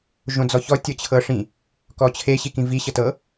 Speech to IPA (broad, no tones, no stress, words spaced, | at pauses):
ʒõd͡zɔçɔ tʲɤt͡ɕʰɤʂĩ | kɔt͡ɕʰe ɕikĩvi ɕɤtɤ